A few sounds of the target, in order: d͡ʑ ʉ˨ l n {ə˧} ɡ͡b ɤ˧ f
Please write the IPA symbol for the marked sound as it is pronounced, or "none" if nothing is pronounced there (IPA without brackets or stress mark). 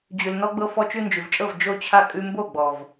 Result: ɔ˧